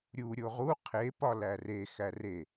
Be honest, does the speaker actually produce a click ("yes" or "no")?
no